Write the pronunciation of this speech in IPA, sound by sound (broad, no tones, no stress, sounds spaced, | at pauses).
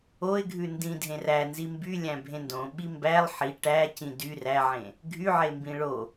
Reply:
o ɪ̯ ɡʱ ʉ n d ĩ dʱ ẽ r æ n z i m b y lʲ æ̃ bʱ ẽ n d õ ɓ i m b æ lˠ ħ i ʈ æ c ĩ d y r æ ʕ ẽ | ɡʱ y ʕ e m b ĩ ɭ o